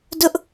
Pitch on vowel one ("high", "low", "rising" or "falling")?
high